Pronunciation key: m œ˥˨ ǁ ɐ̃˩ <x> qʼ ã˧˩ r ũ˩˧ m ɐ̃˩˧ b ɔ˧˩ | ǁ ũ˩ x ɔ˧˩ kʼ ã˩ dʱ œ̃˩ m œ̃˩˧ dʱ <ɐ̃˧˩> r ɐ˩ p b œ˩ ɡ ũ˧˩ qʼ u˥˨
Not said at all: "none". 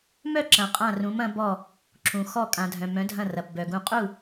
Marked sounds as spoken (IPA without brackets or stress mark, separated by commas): none, ɐ̃˧˩